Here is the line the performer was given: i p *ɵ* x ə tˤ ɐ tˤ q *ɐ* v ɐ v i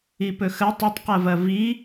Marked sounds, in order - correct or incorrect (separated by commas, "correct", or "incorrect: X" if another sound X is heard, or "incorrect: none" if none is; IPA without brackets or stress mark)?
correct, correct